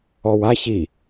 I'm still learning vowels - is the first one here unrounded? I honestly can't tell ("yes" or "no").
no